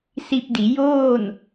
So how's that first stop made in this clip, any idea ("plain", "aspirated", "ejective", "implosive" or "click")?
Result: plain